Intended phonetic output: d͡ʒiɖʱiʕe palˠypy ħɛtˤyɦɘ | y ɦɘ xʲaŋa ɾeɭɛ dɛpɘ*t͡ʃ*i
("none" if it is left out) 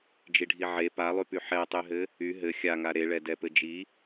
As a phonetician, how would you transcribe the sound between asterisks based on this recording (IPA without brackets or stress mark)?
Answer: d͡ʒ